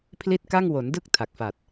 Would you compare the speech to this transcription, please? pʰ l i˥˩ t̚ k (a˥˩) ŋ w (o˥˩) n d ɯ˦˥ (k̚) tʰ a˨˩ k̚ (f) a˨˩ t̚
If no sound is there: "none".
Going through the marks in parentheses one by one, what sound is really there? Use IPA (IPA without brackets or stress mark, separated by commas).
a˥˩, o˩˦, k̚, f